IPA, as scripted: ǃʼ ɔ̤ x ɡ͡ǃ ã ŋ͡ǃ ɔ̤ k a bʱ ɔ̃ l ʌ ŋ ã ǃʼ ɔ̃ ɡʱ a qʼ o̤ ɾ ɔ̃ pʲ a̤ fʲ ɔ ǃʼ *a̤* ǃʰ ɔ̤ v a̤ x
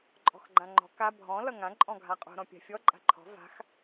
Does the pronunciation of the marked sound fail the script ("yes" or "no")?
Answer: no